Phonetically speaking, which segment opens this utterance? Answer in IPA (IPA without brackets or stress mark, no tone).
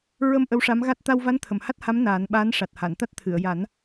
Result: ɹ